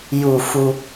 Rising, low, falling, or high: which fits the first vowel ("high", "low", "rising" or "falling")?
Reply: low